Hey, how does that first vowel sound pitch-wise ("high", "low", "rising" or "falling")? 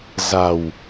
low